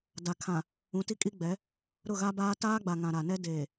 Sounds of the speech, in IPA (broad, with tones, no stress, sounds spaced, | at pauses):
d a˨ kʰ ã˨ | ũ˨˦ t i˦ kʼ i˦ ɡ͡b ɛ˨˦ | ɾ ʊ˦˨ ɣ a˦ b aː˦ t aː˦ ɡ͡b a˨ ŋ ã˨ ɾ a˨ n ɛ˦ d eː˨